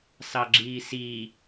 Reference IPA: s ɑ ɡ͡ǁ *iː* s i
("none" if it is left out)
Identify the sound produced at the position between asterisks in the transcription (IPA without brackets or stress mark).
iː